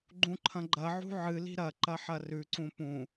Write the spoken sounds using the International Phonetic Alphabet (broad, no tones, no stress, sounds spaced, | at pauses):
ɡ͡ǃ ũ ǃʰ ɐ̃ ɡ͡ǃ ɐ ʕ ṳ ʕ ɨ l i̤ ɾ ɐ ǃ ɐ ħ ɐ r ʉ ǀ ũ p ũ